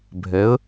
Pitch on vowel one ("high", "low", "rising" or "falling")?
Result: rising